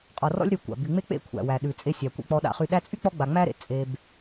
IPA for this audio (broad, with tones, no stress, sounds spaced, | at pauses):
qʼ ɔ˨ r ɔ̰˦ lʲ ɾ y˨ kʷ a̰˩ b y˩ ŋ͡m e˦ k͡p ḛ˦ kʷʰ æ̰˩ w æ˩ ɗ ʉ˩ t͡sʼ e˨ sʲ æ˩ kʷ ḛ˨ k͡p ɔ˨ ɗ a̰˨ χ y˨ ɗ æ˦ t͡sʼ y˥ k͡p ɔ˦ ɡ͡b a˨ ŋ͡m æ˥ ɾ ḛ˩ t͡sʼ e˨ b